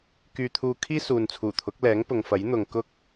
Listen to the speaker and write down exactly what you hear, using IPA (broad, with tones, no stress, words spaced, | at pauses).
kyː˧t̪ʰuː˧kʰiː˥ suː˨nt͡sʰuː˨˩t̪ʰʊ˨˥k̚ lɛː˨˥ŋpʊ˨ŋfɐ˨˥jn̪ʊ˨ŋ kʊ˥k̚